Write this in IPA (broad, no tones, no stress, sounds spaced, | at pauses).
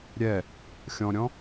ɾʲ ɛ | xʲ ɔ̃ ɾʲ ɔ̃